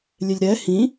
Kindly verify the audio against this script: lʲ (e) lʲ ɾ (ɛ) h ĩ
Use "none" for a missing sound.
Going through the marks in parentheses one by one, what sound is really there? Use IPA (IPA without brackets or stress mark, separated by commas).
e, ɛ